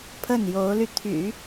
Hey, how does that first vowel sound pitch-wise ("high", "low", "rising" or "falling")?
falling